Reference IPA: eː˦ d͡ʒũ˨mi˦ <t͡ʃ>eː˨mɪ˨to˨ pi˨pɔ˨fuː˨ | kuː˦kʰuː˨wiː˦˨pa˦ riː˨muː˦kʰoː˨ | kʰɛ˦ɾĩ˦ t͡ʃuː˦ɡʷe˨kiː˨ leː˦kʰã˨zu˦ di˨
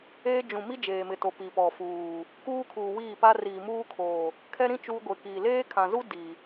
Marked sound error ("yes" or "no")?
yes